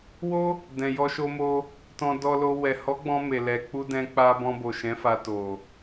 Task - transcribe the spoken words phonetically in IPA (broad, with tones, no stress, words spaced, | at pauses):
wo˦ | dɛ̃˨jɔ˧ʃo˧mo˧ | tɔ̃˧dɔ˧lo˧ wɛ˨ hɔ˨˦ɡ͡bɔ̃˧ me˨ lɛ˨ k͡pu˧dɛ̃˧k͡pa˧ bɔ̃˧bo˨ ʃɛ̃˨˦ fa˧to˨